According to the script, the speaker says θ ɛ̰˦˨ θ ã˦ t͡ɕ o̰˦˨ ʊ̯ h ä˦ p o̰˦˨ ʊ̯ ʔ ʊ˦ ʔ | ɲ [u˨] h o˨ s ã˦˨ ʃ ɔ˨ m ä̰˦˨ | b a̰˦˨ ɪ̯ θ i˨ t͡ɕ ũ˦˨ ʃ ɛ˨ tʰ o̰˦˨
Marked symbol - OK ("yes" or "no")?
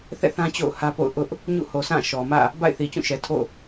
no